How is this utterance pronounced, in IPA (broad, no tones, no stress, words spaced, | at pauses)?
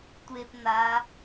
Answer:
tʷep n̪a